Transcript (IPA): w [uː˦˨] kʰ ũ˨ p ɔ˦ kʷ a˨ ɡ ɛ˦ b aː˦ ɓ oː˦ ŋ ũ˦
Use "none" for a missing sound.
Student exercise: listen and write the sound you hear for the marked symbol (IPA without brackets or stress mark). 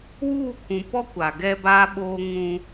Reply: uː˦˨